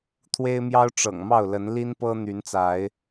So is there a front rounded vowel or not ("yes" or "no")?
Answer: yes